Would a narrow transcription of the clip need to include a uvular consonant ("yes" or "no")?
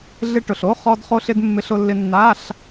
yes